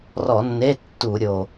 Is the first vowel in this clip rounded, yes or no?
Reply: yes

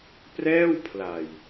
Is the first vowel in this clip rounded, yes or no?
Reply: no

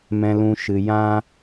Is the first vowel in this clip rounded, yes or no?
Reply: no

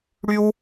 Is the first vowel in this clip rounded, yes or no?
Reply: yes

